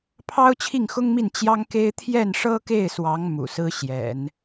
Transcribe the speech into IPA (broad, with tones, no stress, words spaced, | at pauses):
pʰɑ˥ʊ̯t͡ɕʰi˥˩ŋxʊ˥ŋmi˥˩n t͡ɕjɑ˥ŋke˥ɪ̯ t̪ʰjɛ˥˩nʂɤ˥ke˥˩ɪ̯swɑ˧˥ŋ mṵ˨˩ sɹ̩˥ɕjɛ̰˨˩˦n